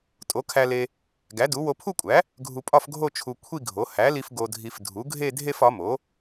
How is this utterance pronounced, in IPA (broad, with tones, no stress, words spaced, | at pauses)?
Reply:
tʼo˩˥kʰæ˧ le˧ | ɡæ˩˥du˩˥ wo˧pʰu˥˧kʷʼæ˩˥ | ɡʱu˧pʼɒ˥˧fɡʱo˥˧ t͡ʃʰu˧ kʷʰi˥˧ɡʱo˩˥ hæ˩˥li˧f ɡo˧dʱi˧f dʱu˩˥ɡʱe˥˧ dʱe˥˧fɒ˩˥mo˩˥